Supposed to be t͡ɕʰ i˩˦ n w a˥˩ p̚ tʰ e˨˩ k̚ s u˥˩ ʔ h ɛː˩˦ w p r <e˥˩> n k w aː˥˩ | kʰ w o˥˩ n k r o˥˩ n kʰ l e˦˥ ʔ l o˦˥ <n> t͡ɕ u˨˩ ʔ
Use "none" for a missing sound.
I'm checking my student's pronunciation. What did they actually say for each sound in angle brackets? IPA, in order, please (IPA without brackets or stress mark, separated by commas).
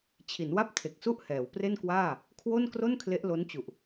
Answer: e˥˩, n